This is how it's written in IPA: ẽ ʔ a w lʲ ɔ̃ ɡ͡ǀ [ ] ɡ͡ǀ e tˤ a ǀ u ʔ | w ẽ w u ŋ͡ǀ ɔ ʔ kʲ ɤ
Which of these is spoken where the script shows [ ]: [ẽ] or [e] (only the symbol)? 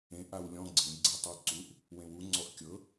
ẽ